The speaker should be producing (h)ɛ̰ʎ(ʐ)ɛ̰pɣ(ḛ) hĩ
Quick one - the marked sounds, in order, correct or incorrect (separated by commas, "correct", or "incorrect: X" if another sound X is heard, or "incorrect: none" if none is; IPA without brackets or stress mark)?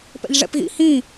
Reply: incorrect: p, correct, incorrect: ḭ